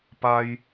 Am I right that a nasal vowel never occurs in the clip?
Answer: yes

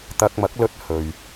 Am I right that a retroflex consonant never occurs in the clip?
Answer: yes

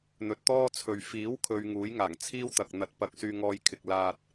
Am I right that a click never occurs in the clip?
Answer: yes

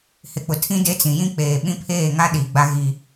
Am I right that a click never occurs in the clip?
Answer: yes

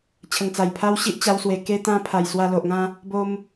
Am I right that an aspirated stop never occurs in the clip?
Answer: no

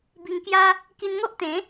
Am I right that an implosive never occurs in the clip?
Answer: yes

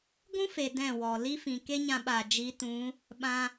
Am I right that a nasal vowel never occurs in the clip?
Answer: no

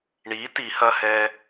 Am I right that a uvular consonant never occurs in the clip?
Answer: yes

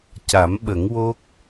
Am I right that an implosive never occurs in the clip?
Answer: no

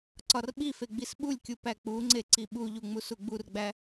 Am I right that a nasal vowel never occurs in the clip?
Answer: yes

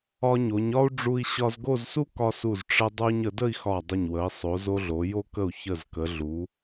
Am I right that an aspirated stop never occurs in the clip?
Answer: yes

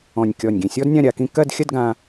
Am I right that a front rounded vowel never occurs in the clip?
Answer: yes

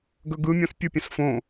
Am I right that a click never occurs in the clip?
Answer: yes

